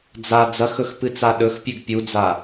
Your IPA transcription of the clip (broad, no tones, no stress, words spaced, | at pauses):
d͡za d͡zɐxɵx pɨt͡saɗɵxpʲʉɡ pʲud͡za